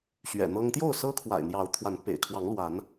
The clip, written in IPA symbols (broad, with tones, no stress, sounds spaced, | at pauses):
ɕ ɥ ɛ̰˨˩ n̪ ɤ˦ ŋ t̪ j o˥˨ ʊ̯ s ɤ˦ kʰ w a̰˨˩ ɪ̯ n̪ j ɑ˨˦ ʊ̯ t̪ʰ w a˨˦ n p ḛ˨˩ ɪ̯ kʰ w ɑ˨˦ ŋ l w a˨˦ n